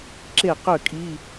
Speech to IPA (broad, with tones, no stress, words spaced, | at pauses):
ǁe˥˨qø˥˨kʼi˧˥˧